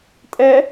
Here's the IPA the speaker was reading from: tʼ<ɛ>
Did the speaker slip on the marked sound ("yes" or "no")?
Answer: no